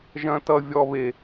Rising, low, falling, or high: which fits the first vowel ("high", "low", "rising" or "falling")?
high